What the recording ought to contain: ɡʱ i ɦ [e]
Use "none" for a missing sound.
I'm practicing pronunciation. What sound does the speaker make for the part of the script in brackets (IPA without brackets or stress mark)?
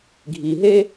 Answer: e